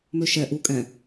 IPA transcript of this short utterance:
møʃɛ ʔu kʼɛ̃

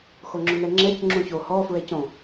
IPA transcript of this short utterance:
xoŋ͡ǁʊnɛŋ͡ǁɛc ŋ͡ǁũço hɔ fɹɛcõ

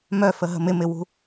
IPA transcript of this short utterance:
mœfəɦə̤ mɪmɪwṳ

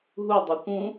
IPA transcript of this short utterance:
ɦudˤøkʷ ũ

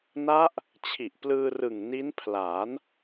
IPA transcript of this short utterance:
na˦˥ʔ | t͡ɕʰi˨˩ʔ plɯː˧rɯ˨˩ŋ ni˦˥npʰla˩˦n

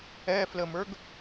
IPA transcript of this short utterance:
ɛfləmə˞ɡ

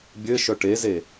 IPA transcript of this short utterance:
bʲɘʃœ ʈeze

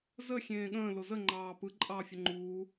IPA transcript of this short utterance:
zə xʲẽːɠə̃ː lozə ŋ͡ǃɑːpɯ ǃʼɑːfʲəŋ͡ǃuː

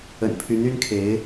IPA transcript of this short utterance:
ə̰˨˩npʰy˧˥ny˥nkʰe˧˥ɪ̯

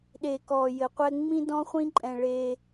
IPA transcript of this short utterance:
ɗe˨kɔ˨ jɘ˨˦qʷɛ˦ ŋ͡mĩ˦dɔ̃˦χʷĩ˦ǃʼɛ̃˨ ɭe˦

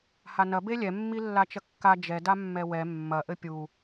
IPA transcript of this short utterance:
hanɐ belʲɛ mːilːat͡ʃɐkːa d͡ʒɛ damːɛwɛ mːɐ ʔɘpʲu

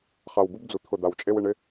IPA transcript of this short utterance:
χa˨wbu˦bd͡zu˨ t̪ʰʊ˨ d̪a˨wt͡ʃʼe˦w ɪ˨ɳɪ˦

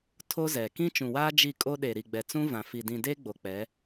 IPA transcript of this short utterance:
tʰo˦zɛ˨ kĩ˦t͡ʃũ˨waː˦ d͡ʒi˦˨kʼo˦ ɗe˨ɾi˨ɡ͡bɛ˨ t͡sũ˦vã˨fi˨ dĩ˨deː˦ ɡ͡bo˨k͡pɛ˨˦

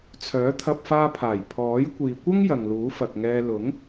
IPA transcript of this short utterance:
t͡sʰœː˨˥t̪ʰɐ˧p̚faː˧pʰaː˨˩j pʰɔː˨˥j kʷiː˨kʷɐ˥ŋ jɐ˨ŋluː˨˥fɐ˨k̚ŋɛː˧ lʊ˨˥ŋ

